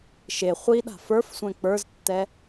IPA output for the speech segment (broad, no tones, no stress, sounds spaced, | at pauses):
ʃ e χʷ i ɗ a̤ f ə˞ f sʷ ɛ̃ k͡p ə˞ z tː ɛ